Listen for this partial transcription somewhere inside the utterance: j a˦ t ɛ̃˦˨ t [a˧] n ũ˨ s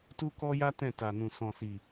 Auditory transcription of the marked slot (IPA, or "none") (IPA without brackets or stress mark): a˨